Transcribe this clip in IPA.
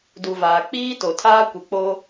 d u˨ v aː˨ k͡p iː˦ t o˨ tʰ aː˦ kʷ ɪ˨ k͡p o˦

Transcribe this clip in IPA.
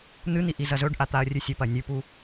n̪ ɨ n̪ i ʔ i z ɐ z ɵ ɖ ʔ a t̪ a ɐ̯ rʲ ʉ sʲ ɵ p ɐ nʲ ʉ p u

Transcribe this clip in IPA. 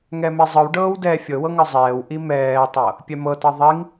ŋ ɛ m e zˤ ɯ w ɖ ɤː w d ɛː fʲ ɤ w ɤ ŋ ɯ zˤ ɛː w ʔ i m ɛː tˤ ɤ | pʲ ɛ m ɤ t ɤ ðˤ i ŋ

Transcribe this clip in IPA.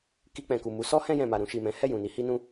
k i˧ k͡p ɛ̃˨ k u˨ m u˨˦ s ɔ˦ h ɛ̃˧ j ɛ̃˨ m a˨ ɾ ũ˧ ʃ i˨ m ɛ̃˨˦ h ɛ˦˨ j ũ˨ n i˨˦ h i˦ n ũ˦

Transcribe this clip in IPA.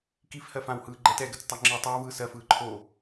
k i f h ɜ f ã w h ɯː ɡ͡ǃ ɛ t ɛ ɡ ə t͡s tˤ œ ŋ͡ǁ i tˤ ə˞ w v ɯː s ɜ f ɯː ǃʰ o

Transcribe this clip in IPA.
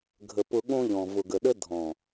ɡʱ ə˨ p ʊ˨ ɠ õ˦ ʎ ɔ̃˨ v ʊ˨ ɡ ə˨ ɗ ə˦ dʱ ɔ̃˨

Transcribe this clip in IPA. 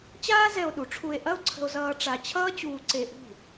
t͡ɕ aː˥ z ɛ˧ o̯ ɗ u˩˥ ʈ͡ʂʰ u˧ e̯ ʔ ɐ˥ o̯ ǀʰ ə̤˧ o̯ z ʌː˧ ʈ͡ʂ a˧ t͡ɕʰ ʌː˥ t͡ɕ uː˧ ǀ e˧ ʔ ṳ˥˩

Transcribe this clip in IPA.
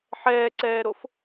ħ ɛː ǀ ɛː ɾ o f

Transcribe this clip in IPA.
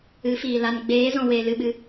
ɨ˨˦ f iː˨ l a˧ n ɡ͡b eː˨˦ z ɔ̃˨ w eː˧ l ɨ˧ ɓ ɨ˧

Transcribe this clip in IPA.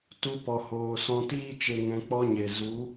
t u˧ p ɔ˨ h oː˨ s ɔ̃˧ t iː˦ t͡ʃ e˧ ŋ ɛ̃˧ k͡p ɔ˦ ɲ e˨ z u˨˦

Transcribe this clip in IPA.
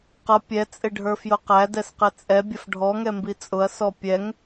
q ʌ pʲ ɛ t͡sʼ ɪ ɖʱ ə˞ f j ʊ q æ d ɛ s q ɪ t͡sʼ ɛ bʲ ə f ɖʱ ɔ ŋ ɛ m b i t͡sʼ ʊ ɐ̯ s ɔ pʲ ɛ ŋ

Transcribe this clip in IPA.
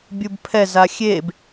bʲ u b pʰ ɛ z a xʲ e b

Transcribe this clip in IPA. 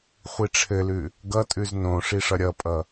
χʷ i ʈ͡ʂʰ ɘ l ʉ | ɡ ʌ tʼ ʉ z n õ ʂ i ʂ ʌ ɾʲ ʌ pʼ ʌ

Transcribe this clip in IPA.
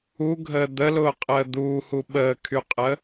u ɡʱ əː d̪ ə l ʊː qʼ əː d̪ uː h u ɓ əː kʰ y qʼ ə

